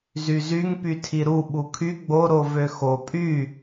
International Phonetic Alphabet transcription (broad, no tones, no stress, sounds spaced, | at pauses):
z y z y ŋ p y tʰ i ɾ u ɓ u kʰ y ɡ͡b o ɾ o v ø x o pʼ y